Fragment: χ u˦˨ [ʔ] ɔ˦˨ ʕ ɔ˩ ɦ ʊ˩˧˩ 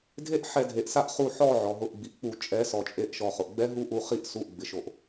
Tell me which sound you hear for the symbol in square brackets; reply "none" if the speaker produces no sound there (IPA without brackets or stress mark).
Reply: ħ